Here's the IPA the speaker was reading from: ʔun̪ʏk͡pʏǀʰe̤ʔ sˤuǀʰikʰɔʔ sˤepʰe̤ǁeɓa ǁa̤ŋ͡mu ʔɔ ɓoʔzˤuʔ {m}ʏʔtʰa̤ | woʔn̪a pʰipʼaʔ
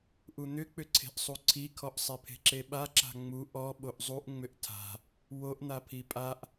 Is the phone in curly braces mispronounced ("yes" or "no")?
yes